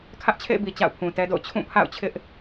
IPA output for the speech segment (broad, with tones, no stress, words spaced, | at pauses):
kʰä˦ʔt͡ɕʰḛ˦˨ɪ̯bi˨ t͡ɕa̰˦˨ʊ̯pʰũ˨tɛ˦do̰˦˨ʊ̯ t͡ɕʰũ˦˨pʰa̰˦˨ʊ̯t͡ɕʰɪ˦ʔ